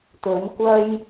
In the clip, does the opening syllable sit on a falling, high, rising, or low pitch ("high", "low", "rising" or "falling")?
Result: rising